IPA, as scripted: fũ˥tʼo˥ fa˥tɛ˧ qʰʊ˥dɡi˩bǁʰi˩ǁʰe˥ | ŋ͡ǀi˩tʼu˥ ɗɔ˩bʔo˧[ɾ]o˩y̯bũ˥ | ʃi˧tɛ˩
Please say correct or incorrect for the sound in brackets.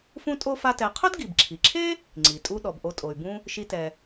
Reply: incorrect